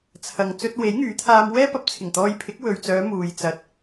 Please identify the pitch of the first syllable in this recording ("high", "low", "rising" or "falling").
low